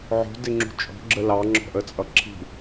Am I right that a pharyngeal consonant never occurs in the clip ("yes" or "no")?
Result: no